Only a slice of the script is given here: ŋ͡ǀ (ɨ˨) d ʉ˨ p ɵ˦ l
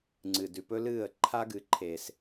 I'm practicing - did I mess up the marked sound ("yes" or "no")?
no